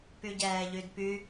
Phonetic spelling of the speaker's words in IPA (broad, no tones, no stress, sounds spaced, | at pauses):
p y ɟ ɛː ʎ y d p y